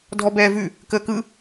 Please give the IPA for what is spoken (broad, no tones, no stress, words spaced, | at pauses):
dʱɔbɛːvʉ | kəːkɯ